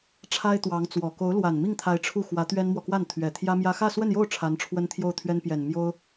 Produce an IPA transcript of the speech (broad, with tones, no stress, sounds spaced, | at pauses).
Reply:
ʈ͡ʂʰ a˥ ɪ̯ t̪ w ɑ˧˥ ŋ t͡s w ɔ˨˩ k o˧˥ ʊ̯ l w a˨˩ n m i˥˩ ŋ t̪ʰ a˧˥ ɪ̯ ʈ͡ʂʰ u˥˩ x w ä˧˥ t̪ ɥ ɛ˥ n m w ɔ˨ k w a˥˩ n t̪ʰ ɥ ɛ˨˩ t̪ʰ j ä˥ m j ä˥ x ä˥˧ s w ə˥˧ n j o˥˩ ʊ̯ ʈ͡ʂʰ a˧˥ n ʈ͡ʂʰ w ə˥ n t̪ʰ j o˥˩ ʊ̯ t̪ʰ ɥ ɛ˥ n p j ɛ˨˩ n m j o˥ ʊ̯